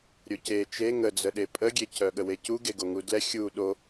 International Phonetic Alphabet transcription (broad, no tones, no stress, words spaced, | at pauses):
ɾʲoce t͡ʃe ŋəd͡zəɗe pʼəɡʲe cœɠəwecu ɡeɡoŋudlɛ xʲu ɗo